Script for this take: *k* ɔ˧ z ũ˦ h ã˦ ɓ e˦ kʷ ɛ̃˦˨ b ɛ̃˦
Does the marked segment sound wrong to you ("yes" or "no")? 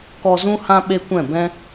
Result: no